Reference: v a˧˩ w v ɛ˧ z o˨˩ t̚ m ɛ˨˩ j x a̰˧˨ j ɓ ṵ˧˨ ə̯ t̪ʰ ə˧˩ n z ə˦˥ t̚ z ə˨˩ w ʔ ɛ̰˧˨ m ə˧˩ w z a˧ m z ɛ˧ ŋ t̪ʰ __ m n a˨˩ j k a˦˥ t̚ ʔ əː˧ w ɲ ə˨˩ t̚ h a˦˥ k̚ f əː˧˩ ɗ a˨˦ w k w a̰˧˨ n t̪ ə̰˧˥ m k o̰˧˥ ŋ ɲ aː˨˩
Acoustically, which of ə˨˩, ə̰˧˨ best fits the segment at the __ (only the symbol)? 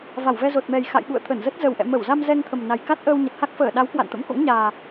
ə˨˩